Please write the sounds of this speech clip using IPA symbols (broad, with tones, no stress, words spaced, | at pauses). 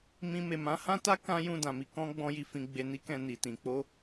mĩ˧ me˨ mã˨˦hã˦ta˦ kã˦jũ˦˨dã˨ mi˨ kɔ̃˧ ɡ͡bɔ̃˧ji˨ fĩ˨ ɡ͡be˨ni˧kɛ̃˨ ni˨tĩ˨ k͡po˧